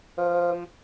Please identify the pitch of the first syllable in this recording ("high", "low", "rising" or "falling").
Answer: high